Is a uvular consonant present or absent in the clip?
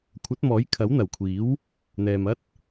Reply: absent